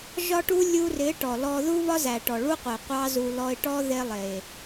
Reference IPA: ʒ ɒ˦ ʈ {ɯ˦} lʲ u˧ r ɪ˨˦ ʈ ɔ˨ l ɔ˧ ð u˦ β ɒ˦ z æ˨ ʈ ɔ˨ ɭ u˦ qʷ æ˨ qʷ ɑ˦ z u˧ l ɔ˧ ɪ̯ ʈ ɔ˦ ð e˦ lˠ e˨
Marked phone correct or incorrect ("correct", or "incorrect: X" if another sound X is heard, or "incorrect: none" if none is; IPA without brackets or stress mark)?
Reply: incorrect: u˦